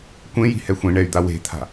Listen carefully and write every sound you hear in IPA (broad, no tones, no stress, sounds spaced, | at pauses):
kʷ ẽ j i̤ h ɛ xʷ ĩ ɳ ɛ y̯ d̪ a w e̤ t̪ʰ a̤